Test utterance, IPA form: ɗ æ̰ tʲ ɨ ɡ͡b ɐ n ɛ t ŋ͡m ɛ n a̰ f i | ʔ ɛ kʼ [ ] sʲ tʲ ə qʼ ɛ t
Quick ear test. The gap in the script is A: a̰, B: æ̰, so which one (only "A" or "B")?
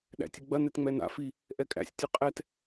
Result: B